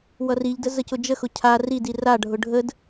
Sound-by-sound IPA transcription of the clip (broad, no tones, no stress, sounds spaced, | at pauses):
w ʌ r i ʎ d ə z ə c ʊ d͡ʒ ə x ʊ cʰ a r i d i r a ɖʱ ʊ ɖʱ ə d